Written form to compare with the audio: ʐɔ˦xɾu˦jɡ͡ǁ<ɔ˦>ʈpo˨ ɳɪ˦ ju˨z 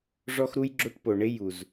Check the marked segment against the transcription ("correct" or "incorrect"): incorrect